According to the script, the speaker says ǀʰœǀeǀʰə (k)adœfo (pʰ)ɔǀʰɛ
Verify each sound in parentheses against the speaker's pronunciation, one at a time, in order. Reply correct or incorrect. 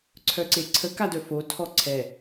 correct, incorrect

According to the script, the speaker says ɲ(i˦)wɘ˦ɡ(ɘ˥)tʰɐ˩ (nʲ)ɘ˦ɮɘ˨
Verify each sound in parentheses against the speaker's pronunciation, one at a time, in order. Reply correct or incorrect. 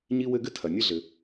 correct, correct, correct

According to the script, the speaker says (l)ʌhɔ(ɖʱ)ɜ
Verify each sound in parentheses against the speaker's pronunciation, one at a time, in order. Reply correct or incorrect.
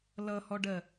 correct, incorrect

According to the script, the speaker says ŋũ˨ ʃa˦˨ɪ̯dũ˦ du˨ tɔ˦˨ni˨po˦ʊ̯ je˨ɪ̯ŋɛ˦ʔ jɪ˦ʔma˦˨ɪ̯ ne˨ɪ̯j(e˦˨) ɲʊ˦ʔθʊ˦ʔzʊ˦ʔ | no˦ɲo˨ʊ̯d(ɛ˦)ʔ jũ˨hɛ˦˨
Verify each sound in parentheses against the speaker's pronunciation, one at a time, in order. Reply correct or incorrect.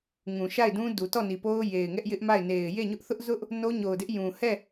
correct, incorrect

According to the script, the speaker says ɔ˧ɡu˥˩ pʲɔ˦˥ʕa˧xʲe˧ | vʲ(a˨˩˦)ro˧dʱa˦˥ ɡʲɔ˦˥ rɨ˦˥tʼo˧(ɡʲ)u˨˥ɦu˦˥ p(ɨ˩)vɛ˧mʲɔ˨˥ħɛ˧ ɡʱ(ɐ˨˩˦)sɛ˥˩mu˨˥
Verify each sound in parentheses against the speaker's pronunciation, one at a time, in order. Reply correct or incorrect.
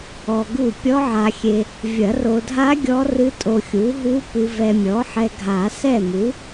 incorrect, incorrect, incorrect, incorrect

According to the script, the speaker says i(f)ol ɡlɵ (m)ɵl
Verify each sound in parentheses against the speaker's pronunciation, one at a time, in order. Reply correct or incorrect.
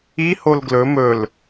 incorrect, correct

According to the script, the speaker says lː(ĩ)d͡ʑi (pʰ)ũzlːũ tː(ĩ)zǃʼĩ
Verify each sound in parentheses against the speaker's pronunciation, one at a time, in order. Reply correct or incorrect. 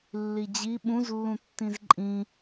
incorrect, incorrect, correct

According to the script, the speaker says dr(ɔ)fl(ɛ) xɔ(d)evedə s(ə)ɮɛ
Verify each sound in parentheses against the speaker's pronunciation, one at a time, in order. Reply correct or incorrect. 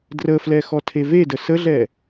incorrect, correct, incorrect, correct

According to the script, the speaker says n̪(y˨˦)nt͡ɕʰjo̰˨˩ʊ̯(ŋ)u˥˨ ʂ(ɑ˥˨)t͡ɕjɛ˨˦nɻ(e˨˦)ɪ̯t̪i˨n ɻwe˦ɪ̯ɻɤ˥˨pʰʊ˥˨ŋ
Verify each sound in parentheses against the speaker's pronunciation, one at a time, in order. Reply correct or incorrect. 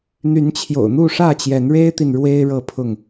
correct, incorrect, incorrect, incorrect

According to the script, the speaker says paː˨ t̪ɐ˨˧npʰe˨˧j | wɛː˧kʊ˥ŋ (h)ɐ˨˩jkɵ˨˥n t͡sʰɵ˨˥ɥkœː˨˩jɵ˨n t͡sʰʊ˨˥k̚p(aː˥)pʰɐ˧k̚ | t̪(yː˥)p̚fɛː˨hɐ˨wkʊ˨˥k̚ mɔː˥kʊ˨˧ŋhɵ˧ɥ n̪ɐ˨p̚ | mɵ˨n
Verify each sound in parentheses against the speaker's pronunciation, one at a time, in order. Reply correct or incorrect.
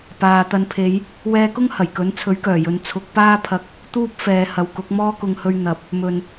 correct, correct, incorrect

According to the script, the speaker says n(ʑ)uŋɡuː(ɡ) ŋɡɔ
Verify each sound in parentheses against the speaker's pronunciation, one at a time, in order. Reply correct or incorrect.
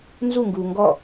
incorrect, incorrect

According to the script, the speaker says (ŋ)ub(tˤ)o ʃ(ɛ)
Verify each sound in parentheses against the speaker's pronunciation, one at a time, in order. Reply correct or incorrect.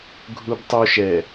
incorrect, correct, correct

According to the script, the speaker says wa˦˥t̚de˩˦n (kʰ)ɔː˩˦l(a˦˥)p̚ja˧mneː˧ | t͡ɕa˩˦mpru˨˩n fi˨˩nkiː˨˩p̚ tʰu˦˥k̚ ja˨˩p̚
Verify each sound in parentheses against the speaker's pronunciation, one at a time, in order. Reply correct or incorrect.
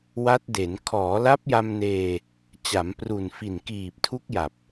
correct, correct

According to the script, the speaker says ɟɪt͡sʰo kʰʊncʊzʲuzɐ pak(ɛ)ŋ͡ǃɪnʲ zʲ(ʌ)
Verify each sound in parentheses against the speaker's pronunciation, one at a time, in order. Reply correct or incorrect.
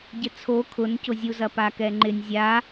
correct, incorrect

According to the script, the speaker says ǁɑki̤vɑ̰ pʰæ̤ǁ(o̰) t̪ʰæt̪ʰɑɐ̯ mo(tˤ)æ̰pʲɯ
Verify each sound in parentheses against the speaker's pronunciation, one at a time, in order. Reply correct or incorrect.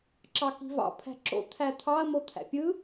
correct, incorrect

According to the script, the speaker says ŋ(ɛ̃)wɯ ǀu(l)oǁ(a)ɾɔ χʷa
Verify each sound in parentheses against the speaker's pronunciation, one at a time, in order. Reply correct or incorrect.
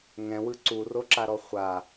correct, incorrect, correct

